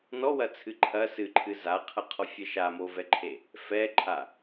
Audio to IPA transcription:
n ɔ w ɐ t͡sʰ ɨ ǃʰ ɐ s ɨ ǃʰ ɨ z a qʰ ɐ qʰ ɔ fʲ ɛ ʃ a m o v ɛ ǃʰ e | f ɛ ǃʰ a

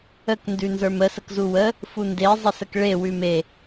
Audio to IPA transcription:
ə k n d ʉ n z ə˞ m ə s ə k z u w ə | f u n d e zˤ ə s ə k ɭ e w ʉ m e

